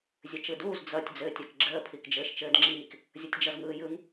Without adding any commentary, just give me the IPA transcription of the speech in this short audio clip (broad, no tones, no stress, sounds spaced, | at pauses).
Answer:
zʲ ɘ t͡ʃ ɯ d uː z d͡z ʌ tʲ d͡z ɘː tʲ ɜ k ɡ͡ǁ əː pʰ i k d͡ʒ ɘː ʃ t͡ʃ ɘː d ŋ͡ǁ iː k | zʲ ʌ tʲ d͡ʒ ʌ z ŋ ɯː j ɯ ŋ